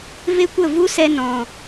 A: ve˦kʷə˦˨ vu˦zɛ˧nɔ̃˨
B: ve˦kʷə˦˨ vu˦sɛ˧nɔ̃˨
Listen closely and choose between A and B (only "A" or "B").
B